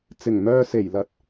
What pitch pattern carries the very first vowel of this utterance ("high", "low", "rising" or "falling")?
low